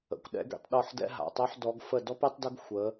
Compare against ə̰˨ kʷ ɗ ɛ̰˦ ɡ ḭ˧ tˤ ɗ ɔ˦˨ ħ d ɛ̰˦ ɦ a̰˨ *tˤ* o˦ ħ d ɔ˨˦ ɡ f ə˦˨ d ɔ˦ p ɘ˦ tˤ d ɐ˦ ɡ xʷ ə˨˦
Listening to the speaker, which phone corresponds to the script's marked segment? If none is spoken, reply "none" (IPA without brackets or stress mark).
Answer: tˤ